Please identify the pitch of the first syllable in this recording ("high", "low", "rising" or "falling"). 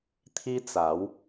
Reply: high